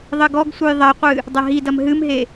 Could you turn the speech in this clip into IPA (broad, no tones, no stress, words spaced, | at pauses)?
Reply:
ðˤɘɡɔɡsʷɨj ðˤɐqʷɨ | dˤɐɦidɐm ɦɨmɦe